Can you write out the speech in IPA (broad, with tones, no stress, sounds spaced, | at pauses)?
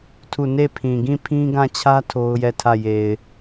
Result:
tʰ u˦˨ n e˦˨ pʰ ĩ˨ ɡ ĩ˦˨ pʰ ĩ˦ ɡ ã˦˨ t͡ɕʰ ä˦ tʰ o˦ ʊ̯ j ɛ˦˨ tʰ ä˦˨ j e˨ ɪ̯